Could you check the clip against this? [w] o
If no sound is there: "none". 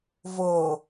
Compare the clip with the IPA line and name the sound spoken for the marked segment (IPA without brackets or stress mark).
v